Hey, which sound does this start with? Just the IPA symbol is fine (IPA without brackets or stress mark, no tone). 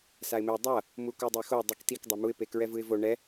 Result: s